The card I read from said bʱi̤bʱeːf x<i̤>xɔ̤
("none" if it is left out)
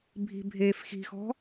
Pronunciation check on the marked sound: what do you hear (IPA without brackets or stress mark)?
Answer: i̤